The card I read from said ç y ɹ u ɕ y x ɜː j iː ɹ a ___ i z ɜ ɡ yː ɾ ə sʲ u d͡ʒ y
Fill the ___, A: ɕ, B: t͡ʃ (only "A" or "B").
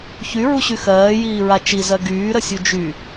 B